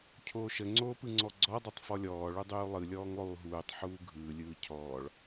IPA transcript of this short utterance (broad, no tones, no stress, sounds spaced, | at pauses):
cʰ oː ʃ ə ŋ͡ǀ oː p ɯ ŋ͡ǀ ɔ ɡ͡ǀ ɔ dˤ o tˤ f ɔ lʲ ɔː ɭ u dˤ uː lˠ ɯ lʲ ɔː ŋ lˠ oː ɦ uː tˤ ħ uː ɡʱ ɯː lʲ ɯː cʰ ɔː ɭ